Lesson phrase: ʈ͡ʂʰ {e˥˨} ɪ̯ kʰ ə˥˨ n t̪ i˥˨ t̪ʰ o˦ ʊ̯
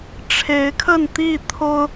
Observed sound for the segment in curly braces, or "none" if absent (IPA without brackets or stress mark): e˨˦